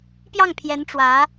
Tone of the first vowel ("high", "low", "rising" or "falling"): falling